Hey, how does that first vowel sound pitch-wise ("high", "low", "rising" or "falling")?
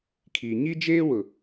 low